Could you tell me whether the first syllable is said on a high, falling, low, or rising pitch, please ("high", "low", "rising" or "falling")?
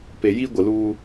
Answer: low